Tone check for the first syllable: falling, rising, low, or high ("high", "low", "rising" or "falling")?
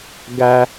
high